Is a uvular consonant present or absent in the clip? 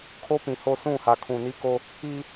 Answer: absent